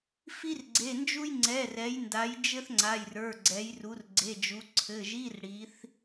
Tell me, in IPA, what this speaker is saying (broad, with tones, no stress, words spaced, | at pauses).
fi˥rɡ͡ǀe˩˧˩nd͡ʒu˥j ŋ͡ǀɛ˩˧˩rɛ˩˧jnda˩˧j d͡ʒɘ˥θŋ͡ǀa˩˧˩jrə˞˩˧˩ ɡ͡ǀɛ˩˧jru˩˧rɡ͡ǀe˩˧˩d͡ʒu˩˧ ǀʰɘ˩˧˩ʒi˧˥˧r ɽi˩˧θ